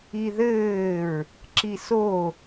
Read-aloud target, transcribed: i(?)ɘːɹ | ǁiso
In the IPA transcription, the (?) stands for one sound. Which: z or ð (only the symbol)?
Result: ð